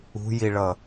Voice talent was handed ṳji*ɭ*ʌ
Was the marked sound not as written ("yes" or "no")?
no